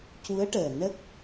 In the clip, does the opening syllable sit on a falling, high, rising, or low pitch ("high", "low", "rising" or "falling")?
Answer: rising